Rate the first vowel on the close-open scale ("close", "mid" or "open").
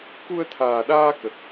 close